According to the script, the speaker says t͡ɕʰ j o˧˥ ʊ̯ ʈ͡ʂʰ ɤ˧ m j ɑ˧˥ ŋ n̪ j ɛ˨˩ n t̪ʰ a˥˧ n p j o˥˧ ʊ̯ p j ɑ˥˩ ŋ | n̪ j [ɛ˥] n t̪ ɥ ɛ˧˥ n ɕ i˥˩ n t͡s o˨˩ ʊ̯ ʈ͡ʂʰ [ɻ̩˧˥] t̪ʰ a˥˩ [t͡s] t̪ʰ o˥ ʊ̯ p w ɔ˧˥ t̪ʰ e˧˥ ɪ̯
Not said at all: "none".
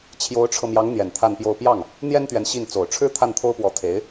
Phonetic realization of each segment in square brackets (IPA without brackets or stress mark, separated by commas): ɛ˥, ɻ̩˥, n